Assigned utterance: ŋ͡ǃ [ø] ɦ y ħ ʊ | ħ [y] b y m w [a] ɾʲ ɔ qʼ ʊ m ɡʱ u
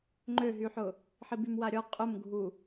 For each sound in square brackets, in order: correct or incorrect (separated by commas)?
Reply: correct, incorrect, correct